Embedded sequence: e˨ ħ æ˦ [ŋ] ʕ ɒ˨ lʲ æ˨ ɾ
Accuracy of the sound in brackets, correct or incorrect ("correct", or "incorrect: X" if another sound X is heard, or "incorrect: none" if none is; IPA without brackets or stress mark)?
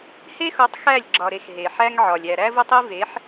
correct